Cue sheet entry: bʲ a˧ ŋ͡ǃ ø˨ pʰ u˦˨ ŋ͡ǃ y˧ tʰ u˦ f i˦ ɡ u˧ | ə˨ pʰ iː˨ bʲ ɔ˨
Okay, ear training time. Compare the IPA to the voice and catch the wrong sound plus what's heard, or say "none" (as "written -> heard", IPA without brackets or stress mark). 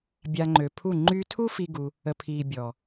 none